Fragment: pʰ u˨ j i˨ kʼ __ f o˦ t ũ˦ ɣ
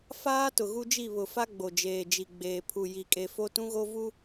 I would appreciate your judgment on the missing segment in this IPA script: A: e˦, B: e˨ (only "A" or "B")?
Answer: B